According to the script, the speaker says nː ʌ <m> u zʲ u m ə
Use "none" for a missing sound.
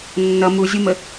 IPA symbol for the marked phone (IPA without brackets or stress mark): m